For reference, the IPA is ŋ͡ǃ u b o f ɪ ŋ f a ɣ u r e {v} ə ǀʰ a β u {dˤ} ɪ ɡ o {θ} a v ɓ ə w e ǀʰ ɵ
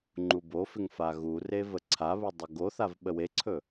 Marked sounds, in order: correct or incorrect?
correct, correct, correct

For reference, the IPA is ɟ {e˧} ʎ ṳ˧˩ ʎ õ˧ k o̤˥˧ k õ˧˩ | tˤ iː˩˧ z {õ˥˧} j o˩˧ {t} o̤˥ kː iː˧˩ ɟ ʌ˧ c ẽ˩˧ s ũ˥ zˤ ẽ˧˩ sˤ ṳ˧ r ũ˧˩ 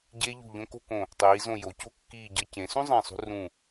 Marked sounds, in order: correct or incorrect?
correct, incorrect: õ˧˩, incorrect: c

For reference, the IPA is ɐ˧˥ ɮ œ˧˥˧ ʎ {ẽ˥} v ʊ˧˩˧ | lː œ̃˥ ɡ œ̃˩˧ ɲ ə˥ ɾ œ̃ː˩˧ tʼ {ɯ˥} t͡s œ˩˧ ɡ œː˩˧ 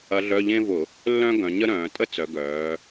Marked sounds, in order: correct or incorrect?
correct, incorrect: ə˥

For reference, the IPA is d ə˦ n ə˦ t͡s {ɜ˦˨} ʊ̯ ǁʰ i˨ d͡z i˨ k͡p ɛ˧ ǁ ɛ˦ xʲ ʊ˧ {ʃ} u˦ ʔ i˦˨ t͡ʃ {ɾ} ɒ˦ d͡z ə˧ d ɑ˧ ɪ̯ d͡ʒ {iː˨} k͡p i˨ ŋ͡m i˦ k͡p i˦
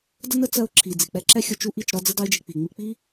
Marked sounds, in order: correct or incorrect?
incorrect: ɜ˧, incorrect: t͡ʃ, correct, incorrect: i˨

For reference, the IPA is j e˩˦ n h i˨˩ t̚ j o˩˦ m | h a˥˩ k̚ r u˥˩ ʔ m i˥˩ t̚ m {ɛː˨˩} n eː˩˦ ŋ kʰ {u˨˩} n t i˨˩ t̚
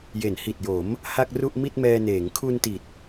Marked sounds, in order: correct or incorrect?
incorrect: ɛː˧, incorrect: u˧

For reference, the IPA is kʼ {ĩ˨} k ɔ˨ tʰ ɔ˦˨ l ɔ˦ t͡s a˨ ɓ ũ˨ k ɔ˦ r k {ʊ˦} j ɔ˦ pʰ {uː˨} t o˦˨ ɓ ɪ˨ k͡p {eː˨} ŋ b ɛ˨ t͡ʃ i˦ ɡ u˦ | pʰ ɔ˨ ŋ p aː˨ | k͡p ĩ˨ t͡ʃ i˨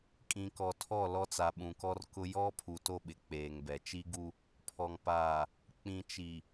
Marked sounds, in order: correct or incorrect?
correct, correct, incorrect: u˨, correct

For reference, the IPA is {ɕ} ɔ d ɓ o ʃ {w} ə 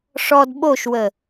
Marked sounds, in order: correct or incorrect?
incorrect: ʂ, correct

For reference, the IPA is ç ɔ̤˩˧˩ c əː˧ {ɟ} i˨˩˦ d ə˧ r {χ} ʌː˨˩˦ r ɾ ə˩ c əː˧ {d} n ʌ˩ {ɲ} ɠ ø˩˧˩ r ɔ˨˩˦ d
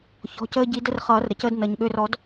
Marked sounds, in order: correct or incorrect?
correct, correct, correct, correct

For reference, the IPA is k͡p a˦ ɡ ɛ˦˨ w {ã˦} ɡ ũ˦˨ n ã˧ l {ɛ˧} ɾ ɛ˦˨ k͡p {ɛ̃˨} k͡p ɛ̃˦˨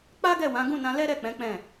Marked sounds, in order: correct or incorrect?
incorrect: ã˨˦, incorrect: ɛ˦, incorrect: ɛ̃˨˦

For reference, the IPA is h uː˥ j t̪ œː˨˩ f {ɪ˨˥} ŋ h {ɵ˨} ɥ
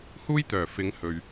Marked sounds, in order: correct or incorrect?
incorrect: ɪ˨˧, correct

